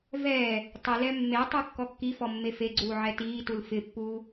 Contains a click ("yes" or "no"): yes